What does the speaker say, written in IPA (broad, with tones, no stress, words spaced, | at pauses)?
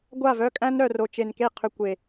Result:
ɡʷa˦˨vœ˦kʼæ̃˦n ɾœ˨ ro˨t͡ʃe˨nke˦˨ qʰʏ˦ kʷe˨